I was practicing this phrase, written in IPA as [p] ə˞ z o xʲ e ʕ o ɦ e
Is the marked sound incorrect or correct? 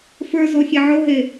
incorrect